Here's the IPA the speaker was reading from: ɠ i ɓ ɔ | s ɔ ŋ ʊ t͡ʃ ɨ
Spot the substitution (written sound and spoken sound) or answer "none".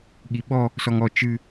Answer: ʊ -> ɔ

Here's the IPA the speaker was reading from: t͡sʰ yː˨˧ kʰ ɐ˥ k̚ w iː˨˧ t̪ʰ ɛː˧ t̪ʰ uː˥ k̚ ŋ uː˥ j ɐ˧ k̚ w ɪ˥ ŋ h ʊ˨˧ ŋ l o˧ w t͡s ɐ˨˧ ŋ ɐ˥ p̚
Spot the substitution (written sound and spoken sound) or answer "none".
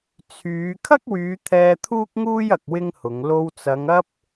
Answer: iː˨˧ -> yː˨˧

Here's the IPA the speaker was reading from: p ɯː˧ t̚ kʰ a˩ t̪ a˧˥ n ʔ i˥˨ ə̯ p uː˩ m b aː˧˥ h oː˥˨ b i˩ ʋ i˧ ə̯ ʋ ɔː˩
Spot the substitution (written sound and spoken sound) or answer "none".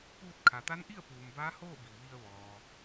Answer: ɯː˧ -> uː˧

